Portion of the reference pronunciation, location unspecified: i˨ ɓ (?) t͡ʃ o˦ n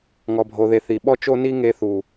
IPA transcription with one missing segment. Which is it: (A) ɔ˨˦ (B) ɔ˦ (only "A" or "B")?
B